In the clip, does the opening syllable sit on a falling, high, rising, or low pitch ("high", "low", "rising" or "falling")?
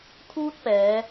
high